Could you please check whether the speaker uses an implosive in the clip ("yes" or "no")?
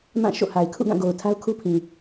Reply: no